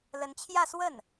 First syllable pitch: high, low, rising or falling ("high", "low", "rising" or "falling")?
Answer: rising